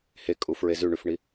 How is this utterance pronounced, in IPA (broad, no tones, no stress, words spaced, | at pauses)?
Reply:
hekʼu fɹezʉɳʉfɳi